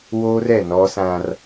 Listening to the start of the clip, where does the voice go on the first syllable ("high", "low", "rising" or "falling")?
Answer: high